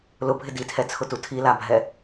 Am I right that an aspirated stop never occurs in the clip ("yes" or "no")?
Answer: no